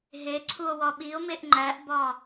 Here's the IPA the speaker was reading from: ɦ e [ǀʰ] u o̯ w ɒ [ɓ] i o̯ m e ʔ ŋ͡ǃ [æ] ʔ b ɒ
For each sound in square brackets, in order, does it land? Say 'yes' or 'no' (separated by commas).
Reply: yes, yes, yes